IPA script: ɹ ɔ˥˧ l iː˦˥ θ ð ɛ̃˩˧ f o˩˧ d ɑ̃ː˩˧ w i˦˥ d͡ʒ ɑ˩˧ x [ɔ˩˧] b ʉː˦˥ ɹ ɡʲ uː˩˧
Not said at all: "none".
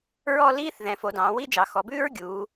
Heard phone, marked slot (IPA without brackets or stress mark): ɔ˩˧